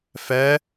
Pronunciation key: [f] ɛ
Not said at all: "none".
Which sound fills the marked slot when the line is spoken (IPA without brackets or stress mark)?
f